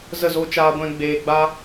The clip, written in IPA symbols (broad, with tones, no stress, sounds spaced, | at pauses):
z ə˦˨ z o˦ t͡ʃ aː˦ ɡʷ ɛ̃˦ ɡ͡b eː˧ ɡ͡b a˦